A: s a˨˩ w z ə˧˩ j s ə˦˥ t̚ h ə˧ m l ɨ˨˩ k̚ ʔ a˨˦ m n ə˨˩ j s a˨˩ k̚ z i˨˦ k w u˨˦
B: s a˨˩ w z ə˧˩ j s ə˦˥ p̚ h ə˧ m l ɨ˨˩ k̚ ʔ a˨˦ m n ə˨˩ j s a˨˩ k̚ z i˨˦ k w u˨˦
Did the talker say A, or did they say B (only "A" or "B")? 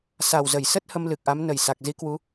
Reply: A